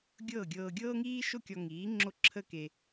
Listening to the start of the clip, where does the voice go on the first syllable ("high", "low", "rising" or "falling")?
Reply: falling